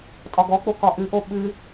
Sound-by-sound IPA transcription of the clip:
tʼɒɡɔk͡po kɒʔɨʔo ɓɨ

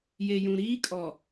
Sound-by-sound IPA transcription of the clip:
je˨jũ˨ ɾiː˦kʼɔ˨

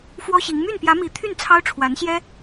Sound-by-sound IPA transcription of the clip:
fwɔ˥ɕi˧˥ŋ my˥˩npjä˧˥mi˧˥t̪ʰy˥˩n t͡sʰɑ˥ʊ̯ʈ͡ʂʰwa˧˥nɕjɛ˥

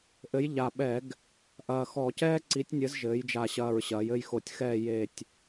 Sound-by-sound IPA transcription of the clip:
ʔɘ˨˥j ʎa˨˩ɓɛ˧˩˧ɡ | ʔɐː˨˩xɔ˧˩˧cɛː˥ ǀi˨˥tʲnʲɘ˨˥z ʒɘː˩˧jd͡ʒa˨˩ɕɐː˨˩ɹ ɕɐː˩˧jɘ˦˨jxo˧˩˧tʲxɛː˦˨ je˦˨tʲ

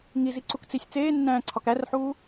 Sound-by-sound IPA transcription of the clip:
ŋiziǀuk t͡sisʲ t͡seːnːæ̃ːǀʰɒk ærħuː

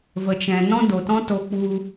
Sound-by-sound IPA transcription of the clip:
və˨t͡ʃɛ̃˨ nɔ̃˦do˨tɔ̃˦to˧ k͡pu˧

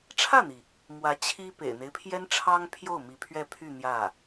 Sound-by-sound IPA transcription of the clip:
ʈ͡ʂʰä˥˩n̪i˩ | mwä˧˥t͡ɕʰi˥ pḛ˨˩ɪ̯n̪e˦ɪ̯pʰjɛ˥n ʈ͡ʂʰɑ˥ŋpʰjo˥˩ʊ̯ mi˧˥pʰɥɛ˥˧pʰy˥˧ n̪jä˥˩

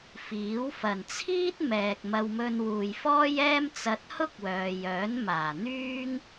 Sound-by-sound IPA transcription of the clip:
fiː˨˥w fɐ˨˩nt͡sʰiː˥t̚ mɛː˨k̚mɐ˧wmɵ˧n wuː˨jfɔː˥jɛː˥m t͡sɐ˧t̚hʊ˥k̚wœː˨ jœː˨˥nmaː˨˩n̪yː˥ŋ

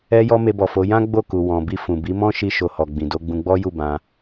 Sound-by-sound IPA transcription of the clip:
ɛ˧jɔ˧ me˧bɔ˨fo˨˦ jã˦ ɡ͡bo˦˨ku˨ wɔ̃˨bi˧ fũ˨bi˨˦mɔ̃˦ ʃi˦ʃo˧ hɔ˨ɡ͡bĩ˨ do˧ɡ͡bũ˧ɡ͡bɔ˦ju˦˨ bã˧

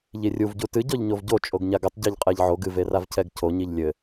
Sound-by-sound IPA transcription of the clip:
ʎirʲuvɟu tɨ ɟɔʎɲovɟo t͡ʃʼoɡɲaɡɘtˤ ɟaʎqʼɛʎʕoɡ ɨveravcʰɛɡ cʰoɲiʎ lʲɘ

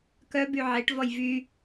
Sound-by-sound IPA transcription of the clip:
kœby ʕeʈvɔj vy

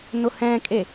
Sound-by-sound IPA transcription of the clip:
nʊhɛ̃kʼe

